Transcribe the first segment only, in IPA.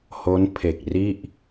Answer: h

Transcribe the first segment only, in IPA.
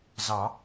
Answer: z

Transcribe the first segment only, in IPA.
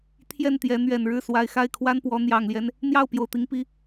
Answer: t̪ʰ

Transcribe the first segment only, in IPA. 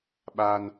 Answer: ɓ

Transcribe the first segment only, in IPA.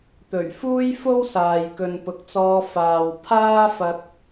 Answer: t̪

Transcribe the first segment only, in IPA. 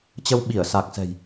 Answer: t͡ɕ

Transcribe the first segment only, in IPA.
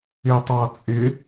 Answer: ɪ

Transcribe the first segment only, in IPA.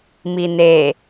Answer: m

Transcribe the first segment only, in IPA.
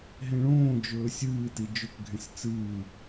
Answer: ɦ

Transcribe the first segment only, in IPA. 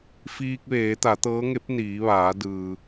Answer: f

